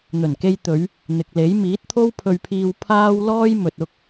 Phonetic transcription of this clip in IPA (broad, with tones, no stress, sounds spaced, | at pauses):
n̪ ɵ˨˩ n k e˧ j t̪ ɵ˨˧ ɥ | n̪ ɪ˨ k̚ l e˨˥ j m iː˨˥ t̚ t̪ʰ o˥ w pʰ ɵ˧ ɥ pʰ iː˧ w pʰ aː˥ w l ɔː˥ j m ɵ˨ t̚ ʊ˧ k̚